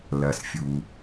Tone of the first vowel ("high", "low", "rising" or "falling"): low